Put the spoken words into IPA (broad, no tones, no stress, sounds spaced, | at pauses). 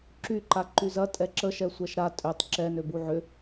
ǁ y ǃ a ǃ y z ɐ tʼ ɛ ǁ ə ʃ ɛ sʷ ɛ ʃ ɾ a tʼ ø tˤ ǁ ɛ n ø b u ʕ ʏ